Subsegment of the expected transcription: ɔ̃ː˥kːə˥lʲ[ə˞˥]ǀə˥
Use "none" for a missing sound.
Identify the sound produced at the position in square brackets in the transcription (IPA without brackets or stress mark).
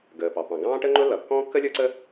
ə˞˥